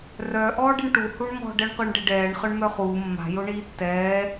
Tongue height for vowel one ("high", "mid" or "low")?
mid